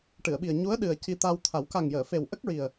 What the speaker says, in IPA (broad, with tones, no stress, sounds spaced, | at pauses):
ʈ ɨ˨˩˨ ə̯ ɓ i˨˩ ə̯ ɲ u˧˥ ə̯ ɗ ɨ˨˩ ə̯ c i˧ t̪ a˧ w t̪ʰ a˨˩˦ w k a˨˩ ŋ j əː˨˩˨ f e˨˩ w ʔ ə˦˥ k̚ ɹ i˨˩ ə̯